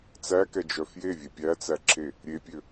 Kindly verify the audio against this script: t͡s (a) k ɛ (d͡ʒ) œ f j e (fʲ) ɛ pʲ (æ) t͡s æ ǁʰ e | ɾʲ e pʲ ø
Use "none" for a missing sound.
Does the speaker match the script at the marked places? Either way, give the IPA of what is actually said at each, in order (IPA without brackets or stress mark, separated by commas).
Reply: æ, d͡ʒ, vʲ, æ